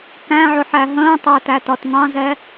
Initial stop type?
plain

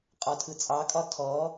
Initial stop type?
ejective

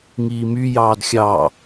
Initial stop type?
plain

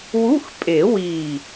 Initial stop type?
ejective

